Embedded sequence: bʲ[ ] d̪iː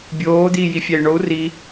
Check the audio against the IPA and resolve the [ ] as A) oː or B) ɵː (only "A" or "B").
A